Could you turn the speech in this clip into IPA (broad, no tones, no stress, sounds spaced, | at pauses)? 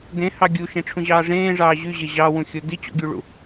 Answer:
d ẽ h ɑ ɡʲ u ʃ ẽ ʈ͡ʂʰ ũ ʑ ɑː ʐ ẽː ʐ ɑː ʑ y ʑ e ʑ ɑ w ũ xʲ o d i t͡ɕ o̰ ɡʲ u ɭ ṵ